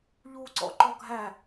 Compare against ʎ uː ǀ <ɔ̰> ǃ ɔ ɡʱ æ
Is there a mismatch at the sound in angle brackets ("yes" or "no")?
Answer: no